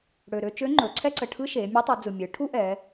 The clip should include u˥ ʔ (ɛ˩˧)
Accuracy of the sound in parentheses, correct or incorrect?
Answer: correct